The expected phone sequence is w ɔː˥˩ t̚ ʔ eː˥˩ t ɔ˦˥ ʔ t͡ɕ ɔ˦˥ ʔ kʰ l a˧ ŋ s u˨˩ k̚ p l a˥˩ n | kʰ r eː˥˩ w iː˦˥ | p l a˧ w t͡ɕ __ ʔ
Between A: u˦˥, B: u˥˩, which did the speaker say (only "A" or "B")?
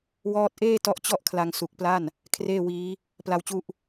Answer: A